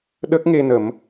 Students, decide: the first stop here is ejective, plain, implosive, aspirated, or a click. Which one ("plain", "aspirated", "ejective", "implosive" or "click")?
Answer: implosive